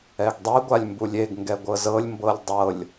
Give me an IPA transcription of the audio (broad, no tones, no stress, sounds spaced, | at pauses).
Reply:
ɛ ɡ dˤ i ɡʷ a lʲ m b u lʲ e ɡ ŋ ɡ ɛ ɡʷ ɤ z ɤ lʲ m b ɤ lʲ dˤ ɤ lʲ